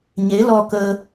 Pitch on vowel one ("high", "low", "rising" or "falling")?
rising